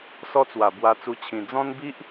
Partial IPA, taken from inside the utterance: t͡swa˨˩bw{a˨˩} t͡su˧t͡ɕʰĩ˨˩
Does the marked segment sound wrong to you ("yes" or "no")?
yes